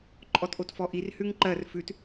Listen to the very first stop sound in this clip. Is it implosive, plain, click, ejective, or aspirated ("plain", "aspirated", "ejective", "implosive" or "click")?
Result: click